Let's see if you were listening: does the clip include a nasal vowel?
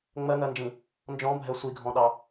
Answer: yes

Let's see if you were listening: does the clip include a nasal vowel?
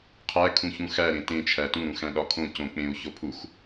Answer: yes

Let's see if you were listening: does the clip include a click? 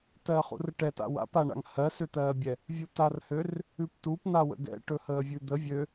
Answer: no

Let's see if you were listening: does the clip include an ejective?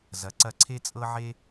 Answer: yes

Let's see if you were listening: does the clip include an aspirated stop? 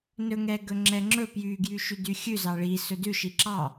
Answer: no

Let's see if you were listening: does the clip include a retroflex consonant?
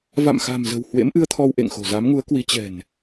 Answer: no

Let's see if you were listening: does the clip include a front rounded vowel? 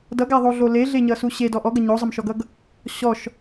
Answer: no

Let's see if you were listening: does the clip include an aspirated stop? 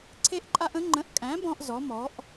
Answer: yes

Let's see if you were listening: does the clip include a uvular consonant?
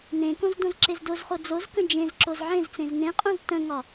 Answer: yes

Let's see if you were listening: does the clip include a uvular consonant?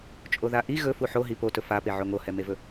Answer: no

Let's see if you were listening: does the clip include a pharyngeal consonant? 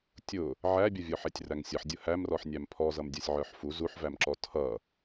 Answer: yes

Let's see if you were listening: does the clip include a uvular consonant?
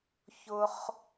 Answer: yes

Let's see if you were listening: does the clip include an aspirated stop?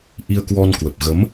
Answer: no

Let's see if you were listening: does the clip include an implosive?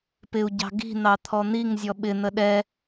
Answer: yes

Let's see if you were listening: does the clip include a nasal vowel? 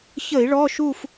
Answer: no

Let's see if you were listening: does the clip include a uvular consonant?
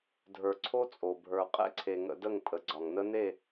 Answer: yes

